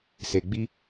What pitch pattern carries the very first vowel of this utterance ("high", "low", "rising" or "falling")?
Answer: low